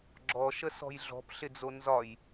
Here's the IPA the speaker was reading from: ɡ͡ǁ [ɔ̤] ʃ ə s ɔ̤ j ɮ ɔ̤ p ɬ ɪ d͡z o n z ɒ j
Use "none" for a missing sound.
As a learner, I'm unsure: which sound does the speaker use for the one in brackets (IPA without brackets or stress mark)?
ɔ